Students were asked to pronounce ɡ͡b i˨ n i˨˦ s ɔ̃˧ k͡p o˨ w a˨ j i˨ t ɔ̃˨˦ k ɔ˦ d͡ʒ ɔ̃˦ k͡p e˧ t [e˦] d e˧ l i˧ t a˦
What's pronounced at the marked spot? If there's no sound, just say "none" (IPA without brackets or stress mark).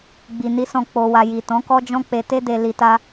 e˦